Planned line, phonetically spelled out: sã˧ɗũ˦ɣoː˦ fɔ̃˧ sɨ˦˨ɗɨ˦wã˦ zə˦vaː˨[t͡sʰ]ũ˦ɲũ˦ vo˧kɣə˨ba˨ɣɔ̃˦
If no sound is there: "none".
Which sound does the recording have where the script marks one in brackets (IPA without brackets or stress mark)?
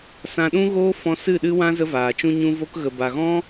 t͡ʃ